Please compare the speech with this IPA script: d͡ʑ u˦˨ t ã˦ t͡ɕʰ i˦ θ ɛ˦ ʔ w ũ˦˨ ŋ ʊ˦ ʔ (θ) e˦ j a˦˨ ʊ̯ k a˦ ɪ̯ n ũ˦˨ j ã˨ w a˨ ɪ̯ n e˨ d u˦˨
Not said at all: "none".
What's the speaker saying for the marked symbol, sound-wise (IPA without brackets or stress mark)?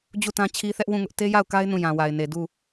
t